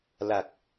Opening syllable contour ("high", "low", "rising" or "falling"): low